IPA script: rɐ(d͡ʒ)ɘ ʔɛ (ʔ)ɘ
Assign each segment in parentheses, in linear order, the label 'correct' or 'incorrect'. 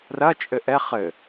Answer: incorrect, incorrect

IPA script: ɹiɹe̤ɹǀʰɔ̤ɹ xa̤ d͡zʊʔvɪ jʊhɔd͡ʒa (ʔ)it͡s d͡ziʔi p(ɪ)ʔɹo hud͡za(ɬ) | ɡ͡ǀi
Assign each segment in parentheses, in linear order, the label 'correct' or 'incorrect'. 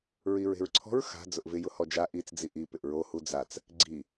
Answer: correct, correct, incorrect

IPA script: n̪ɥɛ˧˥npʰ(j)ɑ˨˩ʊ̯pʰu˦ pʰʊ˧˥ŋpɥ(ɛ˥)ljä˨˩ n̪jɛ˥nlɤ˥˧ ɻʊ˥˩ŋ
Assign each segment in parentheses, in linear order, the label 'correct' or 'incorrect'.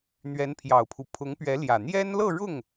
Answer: correct, incorrect

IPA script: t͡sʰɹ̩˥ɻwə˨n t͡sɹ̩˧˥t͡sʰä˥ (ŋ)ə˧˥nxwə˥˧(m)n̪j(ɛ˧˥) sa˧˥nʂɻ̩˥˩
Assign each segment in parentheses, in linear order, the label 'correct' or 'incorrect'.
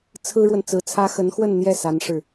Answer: incorrect, incorrect, incorrect

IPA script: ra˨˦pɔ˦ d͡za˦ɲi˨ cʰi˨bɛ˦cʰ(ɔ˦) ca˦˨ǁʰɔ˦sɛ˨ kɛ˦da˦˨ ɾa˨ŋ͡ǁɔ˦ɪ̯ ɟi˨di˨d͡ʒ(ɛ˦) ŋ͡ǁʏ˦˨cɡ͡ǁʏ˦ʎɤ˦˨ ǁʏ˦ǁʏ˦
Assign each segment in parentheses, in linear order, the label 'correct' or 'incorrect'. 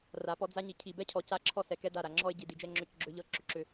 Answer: incorrect, correct

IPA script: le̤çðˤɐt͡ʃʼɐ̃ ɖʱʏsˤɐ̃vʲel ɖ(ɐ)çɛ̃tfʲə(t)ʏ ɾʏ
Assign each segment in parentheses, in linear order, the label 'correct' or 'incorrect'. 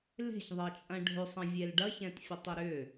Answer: correct, incorrect

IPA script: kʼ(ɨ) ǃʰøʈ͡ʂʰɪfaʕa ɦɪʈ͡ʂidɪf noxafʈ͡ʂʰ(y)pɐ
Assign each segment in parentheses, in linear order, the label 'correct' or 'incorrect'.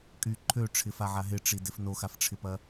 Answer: incorrect, incorrect

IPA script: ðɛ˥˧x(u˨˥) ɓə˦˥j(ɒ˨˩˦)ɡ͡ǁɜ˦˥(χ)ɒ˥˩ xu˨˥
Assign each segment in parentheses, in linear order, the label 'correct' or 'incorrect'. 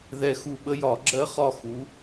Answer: incorrect, correct, correct

